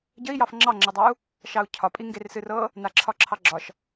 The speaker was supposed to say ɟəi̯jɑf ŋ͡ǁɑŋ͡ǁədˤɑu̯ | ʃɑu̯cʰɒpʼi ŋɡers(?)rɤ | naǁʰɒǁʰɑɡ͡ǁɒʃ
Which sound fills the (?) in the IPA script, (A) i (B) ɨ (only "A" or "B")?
B